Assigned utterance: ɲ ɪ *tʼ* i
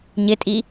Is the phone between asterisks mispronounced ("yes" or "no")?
no